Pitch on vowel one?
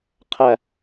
falling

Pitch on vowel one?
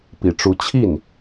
low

